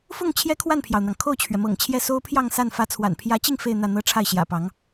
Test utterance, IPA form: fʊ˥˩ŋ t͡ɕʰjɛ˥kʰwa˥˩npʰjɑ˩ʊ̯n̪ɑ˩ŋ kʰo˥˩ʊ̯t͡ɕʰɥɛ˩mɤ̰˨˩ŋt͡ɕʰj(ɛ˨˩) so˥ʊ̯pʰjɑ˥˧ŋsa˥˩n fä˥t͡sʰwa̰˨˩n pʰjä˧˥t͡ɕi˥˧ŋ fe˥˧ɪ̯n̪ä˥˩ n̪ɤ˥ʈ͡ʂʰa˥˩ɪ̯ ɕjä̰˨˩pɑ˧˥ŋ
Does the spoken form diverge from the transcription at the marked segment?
yes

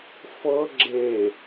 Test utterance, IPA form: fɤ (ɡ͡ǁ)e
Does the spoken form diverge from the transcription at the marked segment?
no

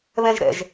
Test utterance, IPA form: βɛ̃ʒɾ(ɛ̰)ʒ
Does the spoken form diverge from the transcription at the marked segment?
no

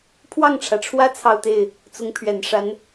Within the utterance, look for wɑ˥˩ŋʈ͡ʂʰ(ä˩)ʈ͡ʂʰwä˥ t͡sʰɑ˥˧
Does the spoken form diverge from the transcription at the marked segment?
no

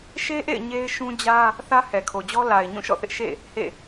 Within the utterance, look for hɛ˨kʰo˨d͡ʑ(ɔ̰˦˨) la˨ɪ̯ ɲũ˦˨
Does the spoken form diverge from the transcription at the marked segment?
yes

